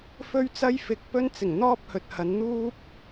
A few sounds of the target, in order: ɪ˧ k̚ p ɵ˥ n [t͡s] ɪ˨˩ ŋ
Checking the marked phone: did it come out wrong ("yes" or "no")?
no